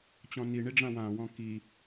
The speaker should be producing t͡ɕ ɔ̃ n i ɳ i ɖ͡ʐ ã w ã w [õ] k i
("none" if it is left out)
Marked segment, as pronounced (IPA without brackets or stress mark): ɔ̃